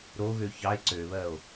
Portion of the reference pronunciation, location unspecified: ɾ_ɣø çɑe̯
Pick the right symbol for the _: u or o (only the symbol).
o